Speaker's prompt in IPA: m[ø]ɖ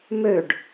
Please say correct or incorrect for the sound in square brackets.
correct